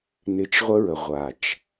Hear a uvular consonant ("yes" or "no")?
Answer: yes